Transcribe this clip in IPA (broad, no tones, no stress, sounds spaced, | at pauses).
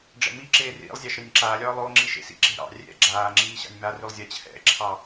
ɖ͡ʐ ɛ̰ m i ǁ eː r ḭ lˠ zʲ ɑ ʃ ɾ ɪ nʲ ǁ aː lʲ ɒː lˠ o ŋ͡ǁ i ʃ ḛ s ḭ ǁ e̤ ɾ ɑ̰ rʲ ɛ̰ ɡ͡ǁ aː ŋ͡ǁ iː ɕ ɑ̰ nʲ m a r ʉ lˠ zʲ a t͡ɕʰ ɛ̰ ǁʰ ɑ